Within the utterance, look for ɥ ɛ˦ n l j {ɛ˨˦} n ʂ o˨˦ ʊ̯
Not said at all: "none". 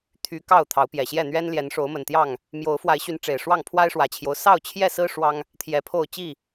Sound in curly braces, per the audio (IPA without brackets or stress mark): ɛ˨˦